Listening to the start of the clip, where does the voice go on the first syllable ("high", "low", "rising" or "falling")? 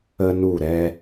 high